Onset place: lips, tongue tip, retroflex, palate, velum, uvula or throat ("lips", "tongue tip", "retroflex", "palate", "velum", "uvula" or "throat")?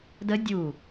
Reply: tongue tip